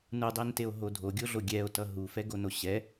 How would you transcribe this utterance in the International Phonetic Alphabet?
nudˤenteo̯ɦo dʱoɡʲoɮo ɡʲɛo̯tʌ ɦufɛɡono ɕɛ

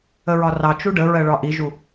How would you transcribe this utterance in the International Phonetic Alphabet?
əɹɒrɑ t͡ʃuɖəɹɜɭɒ ʔiʒu

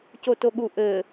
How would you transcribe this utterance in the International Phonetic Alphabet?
cotoɠu ʔɘ

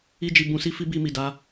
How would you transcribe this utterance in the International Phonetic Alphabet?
i˦d͡ʒi˧ bũ˧si˦fi˦ bi˧mi˨da˧

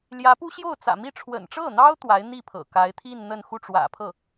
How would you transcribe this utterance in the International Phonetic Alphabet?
ljä˧˥pu˥ ɕjo˥˩ʊ̯t͡sä̰˨˩mi˥˩ ʈ͡ʂʰwə̰˨˩nʈ͡ʂɤ˥˩n̪ɑ˥ʊ̯ t̪wa˧˥ɪ̯n̪i˥˩pʰɤ̰˨˩ ka˧˥ɪ̯t̪ʰi˥˧nn̪ə˥˧n xu˥˩ʈ͡ʂwä̰˨˩pʰɤ˥˩

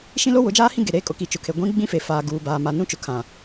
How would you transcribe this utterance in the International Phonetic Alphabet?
ʃĩ˦lo˦wʊ˨˦d͡ʒaː˦ hĩ˦ɡe˨ɾeː˦kʼʊ˨˦ ki˨t͡ʃʊ˨kʰe˨ ɡʷĩ˦ɡ͡bĩ˦fe˨ faː˨ ɡuː˦baː˦ma˦ nũ˦t͡ʃʊ˨kʰã˨

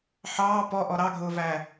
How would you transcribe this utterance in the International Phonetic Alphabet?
ħɑː pɔʔɔ ɾɑɡʱʊːvæ

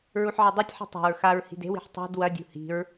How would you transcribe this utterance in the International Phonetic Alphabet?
ɹuħʕedˤʉtʲħi̤ tˤa̤ɹ xaɹ hi̤de̤wi̤ħ tˤṳd wɐdʲṳ hi̤ɹ

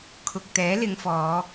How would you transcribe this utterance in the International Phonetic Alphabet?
kʰʊ˨k̚t̪ɛː˨˥lɪ˨˧ŋfɔː˨˧

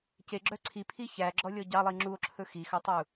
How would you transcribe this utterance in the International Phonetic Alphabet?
ceɡ͡ǁœ ǀʰipʰi çæɡ͡ǁɔlʲɔ ɟɑlˠi ŋ͡ǁuo̯ǁʰɵ xixɵtˤu

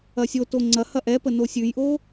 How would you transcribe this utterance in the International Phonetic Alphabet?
ɐsʲoto ŋ͡ǀɐ hɐʔɛpə nosʲʉjʔo

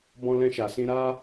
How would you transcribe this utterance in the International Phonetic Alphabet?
bɔ̃˧lɛ̃˧ʃa˨sĩ˧ ɾa˦

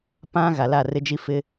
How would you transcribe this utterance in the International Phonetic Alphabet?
pã˦ ɣa˨la˦˨rɪ˦d͡ʒi˦ fɪ˦

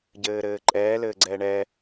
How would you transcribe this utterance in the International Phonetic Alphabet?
ɟɘːɾɘːǃʼɛː lɘːɡ͡ǀɛːɳɛ

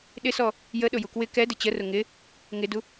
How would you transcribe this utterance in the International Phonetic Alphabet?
ɗɪsɔ | jəɗʊ jukwɪ kɛdɪ t͡ɕərʊ ŋɪ | ŋɪdu

